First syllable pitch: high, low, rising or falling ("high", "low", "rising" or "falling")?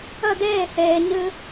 falling